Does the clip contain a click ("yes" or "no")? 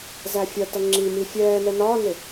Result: yes